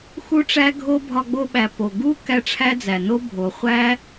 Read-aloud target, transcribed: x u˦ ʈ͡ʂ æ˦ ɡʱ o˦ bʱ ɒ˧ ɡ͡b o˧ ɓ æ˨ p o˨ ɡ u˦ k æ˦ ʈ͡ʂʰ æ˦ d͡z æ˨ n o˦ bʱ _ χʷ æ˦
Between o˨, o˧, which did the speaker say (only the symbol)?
o˨